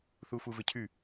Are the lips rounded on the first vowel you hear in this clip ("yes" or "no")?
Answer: yes